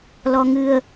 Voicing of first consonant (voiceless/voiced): voiced